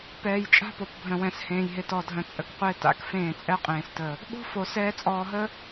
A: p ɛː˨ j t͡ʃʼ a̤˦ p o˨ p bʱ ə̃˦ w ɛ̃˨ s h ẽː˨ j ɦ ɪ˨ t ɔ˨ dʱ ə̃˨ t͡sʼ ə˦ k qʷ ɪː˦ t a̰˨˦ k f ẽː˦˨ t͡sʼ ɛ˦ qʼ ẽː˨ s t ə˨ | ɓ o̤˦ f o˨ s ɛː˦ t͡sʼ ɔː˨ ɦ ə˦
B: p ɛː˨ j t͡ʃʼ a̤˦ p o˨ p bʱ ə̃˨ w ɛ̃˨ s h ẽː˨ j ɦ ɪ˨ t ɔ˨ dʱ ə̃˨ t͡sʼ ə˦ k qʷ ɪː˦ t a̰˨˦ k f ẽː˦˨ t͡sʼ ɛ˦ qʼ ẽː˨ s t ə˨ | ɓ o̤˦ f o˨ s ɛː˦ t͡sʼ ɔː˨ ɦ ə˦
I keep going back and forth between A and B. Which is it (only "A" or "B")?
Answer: B